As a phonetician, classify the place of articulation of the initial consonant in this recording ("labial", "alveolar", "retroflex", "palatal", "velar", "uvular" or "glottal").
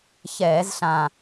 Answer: palatal